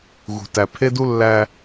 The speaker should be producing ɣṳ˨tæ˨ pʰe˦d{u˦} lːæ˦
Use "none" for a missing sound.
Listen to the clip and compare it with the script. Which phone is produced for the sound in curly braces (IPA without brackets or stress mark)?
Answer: u˦